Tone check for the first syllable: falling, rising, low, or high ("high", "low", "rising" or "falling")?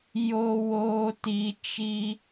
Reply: low